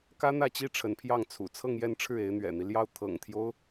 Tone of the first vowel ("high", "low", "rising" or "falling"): high